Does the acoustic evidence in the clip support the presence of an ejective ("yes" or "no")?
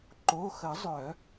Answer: no